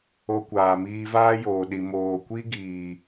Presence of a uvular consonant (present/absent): absent